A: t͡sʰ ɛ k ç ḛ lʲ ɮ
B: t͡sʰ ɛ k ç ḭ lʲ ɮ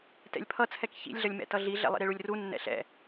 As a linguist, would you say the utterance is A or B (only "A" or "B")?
B